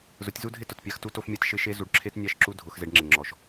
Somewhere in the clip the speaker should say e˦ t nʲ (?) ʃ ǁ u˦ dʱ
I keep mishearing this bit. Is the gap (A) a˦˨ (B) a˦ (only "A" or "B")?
A